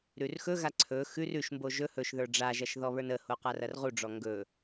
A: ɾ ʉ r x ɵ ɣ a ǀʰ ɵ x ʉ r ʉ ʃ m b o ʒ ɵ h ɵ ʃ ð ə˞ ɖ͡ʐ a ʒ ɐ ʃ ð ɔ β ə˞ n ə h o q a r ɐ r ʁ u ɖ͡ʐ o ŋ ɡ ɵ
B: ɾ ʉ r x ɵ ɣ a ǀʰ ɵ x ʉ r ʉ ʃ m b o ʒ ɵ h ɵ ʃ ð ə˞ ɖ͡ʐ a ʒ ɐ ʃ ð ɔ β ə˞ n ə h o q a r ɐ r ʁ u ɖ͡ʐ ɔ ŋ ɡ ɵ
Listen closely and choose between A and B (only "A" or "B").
B